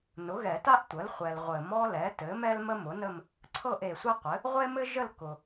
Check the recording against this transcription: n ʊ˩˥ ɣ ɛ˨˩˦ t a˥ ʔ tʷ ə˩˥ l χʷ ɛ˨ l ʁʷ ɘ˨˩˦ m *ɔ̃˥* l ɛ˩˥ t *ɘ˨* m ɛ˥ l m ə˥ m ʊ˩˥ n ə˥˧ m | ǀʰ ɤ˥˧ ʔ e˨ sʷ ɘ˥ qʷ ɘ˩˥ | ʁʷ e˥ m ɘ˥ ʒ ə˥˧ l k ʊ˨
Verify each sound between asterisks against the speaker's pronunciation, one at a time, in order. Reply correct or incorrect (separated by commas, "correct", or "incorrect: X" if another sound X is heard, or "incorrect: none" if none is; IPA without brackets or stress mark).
incorrect: ɔ˥, incorrect: ɘ˩˥